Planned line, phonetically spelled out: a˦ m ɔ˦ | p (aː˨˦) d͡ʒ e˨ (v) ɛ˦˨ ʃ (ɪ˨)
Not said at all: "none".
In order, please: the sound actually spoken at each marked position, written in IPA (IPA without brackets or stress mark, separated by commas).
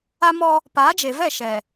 aː˨˦, v, ɛ˨